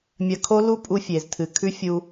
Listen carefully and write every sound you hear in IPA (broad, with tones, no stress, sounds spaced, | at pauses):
mʲ ɐ˧ kʰ o˦ l u˦ pʼ u˧ fʲ e˨ z tʰ ɨ˨ kʰ ʉ˦ fʲ u˧